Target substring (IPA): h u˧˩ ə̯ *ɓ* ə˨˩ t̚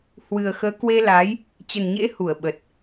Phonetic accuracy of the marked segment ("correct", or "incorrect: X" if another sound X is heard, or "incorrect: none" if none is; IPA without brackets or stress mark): correct